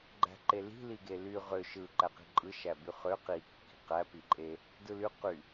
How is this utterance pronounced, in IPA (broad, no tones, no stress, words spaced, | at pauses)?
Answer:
ɡ͡ǃæ̤ǃeli̤ liɡely ʁø ʃɯ ǃæqi̤ǃʼɯ ʃæbyχø qi kːi̤qæ piǃʼe | dɯly qy